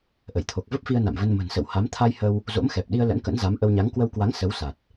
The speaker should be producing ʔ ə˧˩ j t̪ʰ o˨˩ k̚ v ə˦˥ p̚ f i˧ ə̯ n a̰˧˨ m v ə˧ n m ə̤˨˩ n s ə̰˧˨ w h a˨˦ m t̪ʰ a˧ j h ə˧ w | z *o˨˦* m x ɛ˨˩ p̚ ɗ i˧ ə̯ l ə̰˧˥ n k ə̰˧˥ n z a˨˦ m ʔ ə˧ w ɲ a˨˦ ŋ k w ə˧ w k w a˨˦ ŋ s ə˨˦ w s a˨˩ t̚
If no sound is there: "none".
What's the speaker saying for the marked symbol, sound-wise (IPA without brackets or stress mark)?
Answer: o̰˧˥